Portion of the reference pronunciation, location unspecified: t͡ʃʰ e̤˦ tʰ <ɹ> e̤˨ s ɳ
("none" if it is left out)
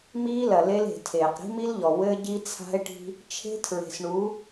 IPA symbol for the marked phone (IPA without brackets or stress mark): ɹ